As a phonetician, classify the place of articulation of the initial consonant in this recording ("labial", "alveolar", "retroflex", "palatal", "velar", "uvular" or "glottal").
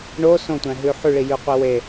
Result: retroflex